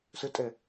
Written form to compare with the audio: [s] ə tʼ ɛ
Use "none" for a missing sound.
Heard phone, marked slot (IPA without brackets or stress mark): s